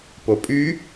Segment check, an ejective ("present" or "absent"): present